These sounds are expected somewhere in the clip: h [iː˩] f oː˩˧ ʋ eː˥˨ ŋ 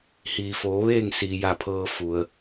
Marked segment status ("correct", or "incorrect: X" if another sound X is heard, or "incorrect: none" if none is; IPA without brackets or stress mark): correct